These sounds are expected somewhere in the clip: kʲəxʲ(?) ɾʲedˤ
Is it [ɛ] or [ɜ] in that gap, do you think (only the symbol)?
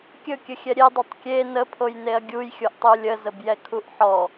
ɛ